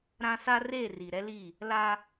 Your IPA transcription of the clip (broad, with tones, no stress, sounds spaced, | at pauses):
ɾ ã˦ s a˦ r e˦˨ r i˨ ɾ ɛ˦ l i˦˨ | l a˦